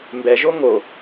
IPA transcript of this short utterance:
m b ɛ ʒ o ŋ o

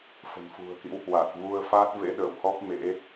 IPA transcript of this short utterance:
f ə̤˨˩ n f ṳ˨˩ ə̯ k ḭ˧˥ w h w a˨˩ t̚ v u˧ ə̯ f aː˦˥ t̚ v ḛ˧˥ ɗ ə̰ː˧˨ w h ɔ˦˥ p̚ m ḛ˧˥

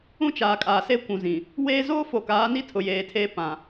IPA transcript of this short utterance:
ũ˦ t͡ʃ aː˨ kʼ aː˨ s e˦ kʷ ũ˨ z ĩ˨ | w eː˦ z oː˦ f o˨ k aː˨˦ n i˦ tʰ ʊ˨ j eː˨ tʰ eː˦ p ã˨

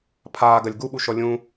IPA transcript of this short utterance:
pʰ aː ɡ ɐ lʲ ɡ u ɓ u ʃ ɔ lʲ ũ

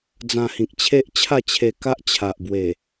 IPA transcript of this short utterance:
d͡z ã˧ h ĩ˨ k̚ t͡ɕʰ e˦ ʔ t͡ɕʰ a˥˧ t͡ɕʰ e˧ k a˦ ʔ t͡ɕʰ a˨ ʔ b w e˨˩

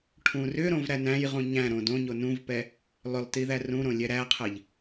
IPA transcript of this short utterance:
ʈʰ ũ r ʏ ɾ õ v ɾ æ n æ̃ j ʁ ũ ɲ æ̃ ɾ õ d õ ɲ o n ũ v p ɛ | lˠ ʏ lˠ t i ð æ r ũ ɾ õ lʲ ɛ ɾ æ qʰ ɛ ʎ

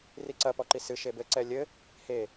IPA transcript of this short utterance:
r i ǀ ɐ p ɔ ǃ i s ɨ ʃ e b ɘ ǀ ɛ lʲ ɘ | h e

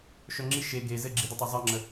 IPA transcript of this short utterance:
ʃ œ ŋ͡ǁ i ʃ e ɡ e z ɘ ɡ͡ǁ i d ɘ tˤ ø zˤ ɜ ŋ͡ǁ ə

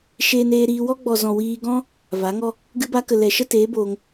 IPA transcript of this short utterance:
ʃ eː˧ n eː˧ ɾ iː˧ w ɔ˦ ɡ͡b ɔ˨ z ɔ̃˨ w iː˧ ɡ ɔ̃˦ | v a˨˦ ŋ ɔ˦ | ɡ ɨ˧ b a˧ k ə˨ l ɛ˨ ʃ ə˦ t eː˨˦ b oː˧ ŋ

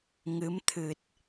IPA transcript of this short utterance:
ŋ ɨ˨˦ m t̪ʰ ɨ˨˩ t̚

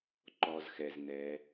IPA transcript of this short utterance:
ǃ ɔ˨ z x ɛ˨ z n ɛ˨˦

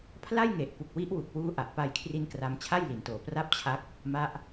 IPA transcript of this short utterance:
pʰ l a˥˩ j ŋ e˨˩ ʔ p u˨˩ k̚ w i˦˥ ʔ w u˨˩ k̚ w uː˧ ʔ a˨˩ ʔ p a˧ j kʰ r i˦˥ n k r a˧ m t͡ɕʰ a˥˩ j l i˩˦ n t oː˨˩ p r a˥˩ p̚ t͡ɕʰ a˦˥ k̚ | m a˦˥ ʔ

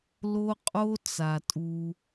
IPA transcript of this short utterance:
l o˦ qʼ o˦ t͡s a˨ tʼ u˧

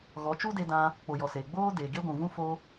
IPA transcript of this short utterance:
ɣ ɔ˨˦ t͡ʃ u˦ d e˧ d ã˧ | k͡p o˨ j ɔ˨ s eː˨ ɡ͡b oː˦ d e˨ ɡ e˦ ɡʷ ũ˨ v ũ˦ f o˧

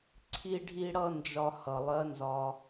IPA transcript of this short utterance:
ǀʰ i˧ ɖʱ i˧ ɽ ʌ˧ n d͡ʒ ɒ˧ h ʌ˩ lˠ ɜ˩˧ n z ɒ˩

